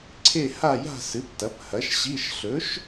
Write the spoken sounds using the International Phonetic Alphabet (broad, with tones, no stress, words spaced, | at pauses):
ǀʰe˥˧ha˥˧ja̤˥˧ sɨ˨˥ptɐ˨˥phɐ˨˥ʃ ɕi˧˥˧ʃ ɬɵ˨˥ʃ